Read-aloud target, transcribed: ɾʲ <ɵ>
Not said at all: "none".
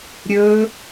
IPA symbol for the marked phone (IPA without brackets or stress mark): ɵ